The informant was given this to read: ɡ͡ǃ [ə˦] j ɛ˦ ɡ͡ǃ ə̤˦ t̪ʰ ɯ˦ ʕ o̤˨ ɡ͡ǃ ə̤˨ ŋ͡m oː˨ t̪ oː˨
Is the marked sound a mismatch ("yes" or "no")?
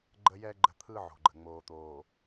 no